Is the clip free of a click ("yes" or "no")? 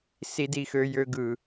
yes